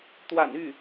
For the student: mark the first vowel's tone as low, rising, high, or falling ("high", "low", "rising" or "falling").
low